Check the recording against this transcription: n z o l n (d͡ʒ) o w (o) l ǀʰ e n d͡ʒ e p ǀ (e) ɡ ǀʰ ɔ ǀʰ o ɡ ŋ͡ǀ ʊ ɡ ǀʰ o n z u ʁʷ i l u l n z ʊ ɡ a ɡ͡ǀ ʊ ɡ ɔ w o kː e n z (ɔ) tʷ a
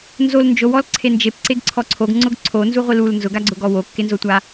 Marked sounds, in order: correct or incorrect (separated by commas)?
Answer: correct, incorrect, correct, incorrect